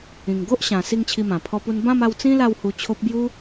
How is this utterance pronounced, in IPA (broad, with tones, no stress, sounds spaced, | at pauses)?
ĩ˨˩ ŋ ɡ o˦ ʔ ɕ ã˨˩ s i˥˧ ŋ t͡ɕʰ i˧ m ã˨˩ pʰ ɔ˧ p u˧ n b ã˥˧ m a˧ w t͡s ĩ˦ l a˥˧ w h u˧ t͡ɕʰ o˦ p̚ b j u˧